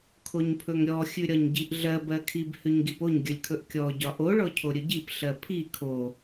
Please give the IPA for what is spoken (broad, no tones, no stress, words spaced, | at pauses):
kʰoɲpʰɵŋɾʲɔ xʲʉɾʲɒɲɟiʔɮɜ bɜkʰib hʉɲɡipoɲ ɡʲɵlʲkʰɵʔkʲɔ ɟɒʔo ɭɔcʰoɾʲɵɟip ɬɜpʰi kʰo